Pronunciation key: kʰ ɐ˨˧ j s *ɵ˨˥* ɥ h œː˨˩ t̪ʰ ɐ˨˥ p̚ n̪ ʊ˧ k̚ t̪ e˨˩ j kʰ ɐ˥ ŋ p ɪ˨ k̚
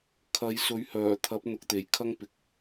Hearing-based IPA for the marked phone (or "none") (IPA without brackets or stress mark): ɵ˨˥